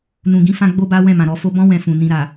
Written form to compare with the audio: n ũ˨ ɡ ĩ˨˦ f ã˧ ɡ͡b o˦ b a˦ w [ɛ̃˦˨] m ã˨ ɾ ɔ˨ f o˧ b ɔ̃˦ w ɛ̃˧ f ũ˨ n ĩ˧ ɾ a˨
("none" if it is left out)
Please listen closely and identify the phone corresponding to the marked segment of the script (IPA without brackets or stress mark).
ɛ̃˦˨